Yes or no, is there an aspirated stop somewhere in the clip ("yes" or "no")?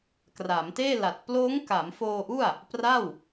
no